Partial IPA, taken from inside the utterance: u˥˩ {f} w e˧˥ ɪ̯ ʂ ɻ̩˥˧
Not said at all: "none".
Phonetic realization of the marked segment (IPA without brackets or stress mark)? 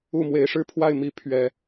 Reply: m